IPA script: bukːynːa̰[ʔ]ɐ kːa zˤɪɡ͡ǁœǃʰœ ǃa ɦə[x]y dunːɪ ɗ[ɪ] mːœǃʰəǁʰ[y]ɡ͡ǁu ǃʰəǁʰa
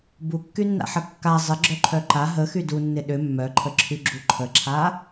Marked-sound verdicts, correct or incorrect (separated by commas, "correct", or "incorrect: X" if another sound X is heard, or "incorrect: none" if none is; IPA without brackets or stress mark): incorrect: ħ, correct, incorrect: ʏ, correct